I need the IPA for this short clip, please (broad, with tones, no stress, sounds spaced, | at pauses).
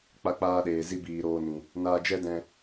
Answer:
k͡p a˧ k͡p aː˧ ɗ eː˨ z i˦ b iː˨ ɾ oː˧ n ĩ˨ | n aː˧ d͡ʒ ɛ˦ d ɛ̃˧